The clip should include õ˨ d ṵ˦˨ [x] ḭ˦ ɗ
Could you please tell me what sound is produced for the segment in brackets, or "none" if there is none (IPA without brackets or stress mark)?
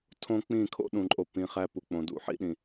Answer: ħ